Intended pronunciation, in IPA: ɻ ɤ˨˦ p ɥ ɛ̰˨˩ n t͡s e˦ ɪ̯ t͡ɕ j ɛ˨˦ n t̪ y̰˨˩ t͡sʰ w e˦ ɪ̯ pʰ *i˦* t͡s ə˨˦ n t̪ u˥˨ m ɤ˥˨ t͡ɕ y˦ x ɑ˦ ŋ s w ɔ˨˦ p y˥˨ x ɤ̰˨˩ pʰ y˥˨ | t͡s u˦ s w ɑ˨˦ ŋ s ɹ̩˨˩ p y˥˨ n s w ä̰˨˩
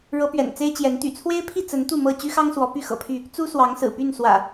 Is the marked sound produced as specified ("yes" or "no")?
no